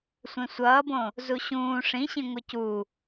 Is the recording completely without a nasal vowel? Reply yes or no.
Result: no